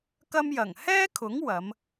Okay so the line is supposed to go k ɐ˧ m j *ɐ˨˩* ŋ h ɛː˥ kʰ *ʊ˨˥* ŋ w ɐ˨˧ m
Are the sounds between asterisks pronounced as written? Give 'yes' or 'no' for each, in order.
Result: yes, yes

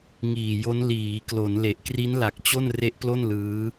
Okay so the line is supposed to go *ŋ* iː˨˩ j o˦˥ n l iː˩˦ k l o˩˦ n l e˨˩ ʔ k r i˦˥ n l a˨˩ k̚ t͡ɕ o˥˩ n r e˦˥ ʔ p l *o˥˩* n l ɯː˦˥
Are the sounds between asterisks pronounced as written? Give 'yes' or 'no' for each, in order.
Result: yes, yes

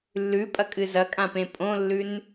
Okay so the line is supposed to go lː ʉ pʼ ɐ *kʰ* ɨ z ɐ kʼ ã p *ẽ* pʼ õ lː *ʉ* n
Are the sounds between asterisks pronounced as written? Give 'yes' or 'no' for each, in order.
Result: no, yes, yes

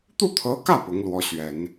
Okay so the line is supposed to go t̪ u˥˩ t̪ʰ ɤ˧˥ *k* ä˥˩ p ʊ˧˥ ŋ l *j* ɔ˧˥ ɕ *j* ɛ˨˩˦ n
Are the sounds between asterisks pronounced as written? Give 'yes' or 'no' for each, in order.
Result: yes, no, no

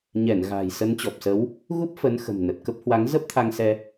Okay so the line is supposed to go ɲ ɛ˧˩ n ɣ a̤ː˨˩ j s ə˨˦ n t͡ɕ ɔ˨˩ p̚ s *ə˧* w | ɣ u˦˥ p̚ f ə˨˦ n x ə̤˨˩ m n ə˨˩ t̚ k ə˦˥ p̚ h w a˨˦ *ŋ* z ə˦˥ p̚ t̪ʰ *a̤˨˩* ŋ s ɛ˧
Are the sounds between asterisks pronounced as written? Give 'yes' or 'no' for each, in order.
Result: no, yes, no

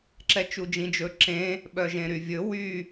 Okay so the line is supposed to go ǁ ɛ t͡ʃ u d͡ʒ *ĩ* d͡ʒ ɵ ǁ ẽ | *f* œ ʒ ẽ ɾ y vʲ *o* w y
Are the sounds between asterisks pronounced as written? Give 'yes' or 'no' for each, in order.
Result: yes, no, no

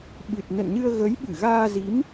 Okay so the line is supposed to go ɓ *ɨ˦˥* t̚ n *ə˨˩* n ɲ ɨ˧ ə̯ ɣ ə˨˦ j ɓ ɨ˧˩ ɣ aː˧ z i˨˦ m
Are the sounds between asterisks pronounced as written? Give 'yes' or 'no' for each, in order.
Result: no, no

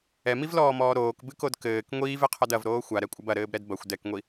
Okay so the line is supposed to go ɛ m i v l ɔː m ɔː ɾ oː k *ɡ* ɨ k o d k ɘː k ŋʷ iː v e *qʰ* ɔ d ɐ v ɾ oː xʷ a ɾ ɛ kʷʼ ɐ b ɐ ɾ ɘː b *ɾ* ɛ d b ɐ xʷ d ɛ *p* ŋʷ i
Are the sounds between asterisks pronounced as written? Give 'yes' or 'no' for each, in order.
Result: no, yes, yes, no

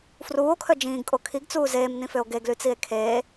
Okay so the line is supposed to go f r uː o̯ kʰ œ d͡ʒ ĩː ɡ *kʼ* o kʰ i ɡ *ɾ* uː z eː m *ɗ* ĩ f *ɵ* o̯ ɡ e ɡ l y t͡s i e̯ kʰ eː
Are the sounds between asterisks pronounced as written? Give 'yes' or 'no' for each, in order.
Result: yes, no, no, no

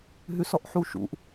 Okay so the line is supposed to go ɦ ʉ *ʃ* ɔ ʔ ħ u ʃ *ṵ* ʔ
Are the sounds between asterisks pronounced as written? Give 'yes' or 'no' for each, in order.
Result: no, yes

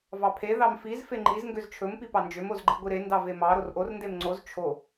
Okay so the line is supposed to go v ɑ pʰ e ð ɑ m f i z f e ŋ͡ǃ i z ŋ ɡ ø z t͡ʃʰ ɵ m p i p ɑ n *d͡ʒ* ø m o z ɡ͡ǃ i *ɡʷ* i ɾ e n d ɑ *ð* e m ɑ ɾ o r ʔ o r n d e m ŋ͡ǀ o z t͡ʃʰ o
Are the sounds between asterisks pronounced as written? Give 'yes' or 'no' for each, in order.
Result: yes, yes, no

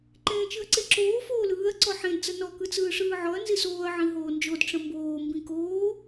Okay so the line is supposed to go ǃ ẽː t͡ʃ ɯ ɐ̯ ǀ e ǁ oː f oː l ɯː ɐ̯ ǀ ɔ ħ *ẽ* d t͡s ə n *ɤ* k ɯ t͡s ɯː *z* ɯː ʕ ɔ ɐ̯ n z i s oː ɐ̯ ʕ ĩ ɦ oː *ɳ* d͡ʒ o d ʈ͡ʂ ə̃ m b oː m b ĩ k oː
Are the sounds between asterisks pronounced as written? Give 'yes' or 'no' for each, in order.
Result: yes, no, no, no

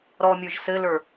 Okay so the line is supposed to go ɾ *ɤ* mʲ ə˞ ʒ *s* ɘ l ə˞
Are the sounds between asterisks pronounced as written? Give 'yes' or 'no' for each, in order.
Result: no, yes

